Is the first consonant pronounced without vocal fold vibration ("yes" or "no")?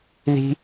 no